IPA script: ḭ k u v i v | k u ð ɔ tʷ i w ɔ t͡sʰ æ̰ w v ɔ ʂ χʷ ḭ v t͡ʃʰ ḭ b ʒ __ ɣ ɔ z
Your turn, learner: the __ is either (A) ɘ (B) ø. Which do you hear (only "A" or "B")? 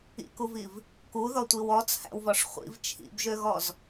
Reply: B